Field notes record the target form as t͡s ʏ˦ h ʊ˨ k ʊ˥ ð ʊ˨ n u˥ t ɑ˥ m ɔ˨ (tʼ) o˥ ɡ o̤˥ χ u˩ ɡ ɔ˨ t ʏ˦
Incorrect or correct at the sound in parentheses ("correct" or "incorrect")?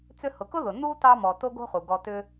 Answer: incorrect